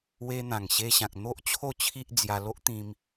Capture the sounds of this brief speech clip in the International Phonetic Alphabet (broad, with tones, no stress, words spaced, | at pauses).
we˧n̪ã˨˩ŋɕe˧ɕã˨k̚ n̪o˦ʔt͡ɕʰo˥˧t͡ɕʰi˦ʔ d͡zja˧lo˦ʔt̪ĩ˧m